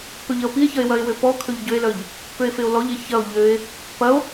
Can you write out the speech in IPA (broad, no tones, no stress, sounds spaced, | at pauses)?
p ø ʎ ɐ o̯ p i e̯ ç ɐ e̯ w ɐ e̯ w ø p ɔ kʰ ø ʎ ɟ ø e̯ l œ ʎ | p ø e̯ f e o̯ l ɔ ʎ e ç ɐ o̯ ʎ ø e̯ | p ɐ o̯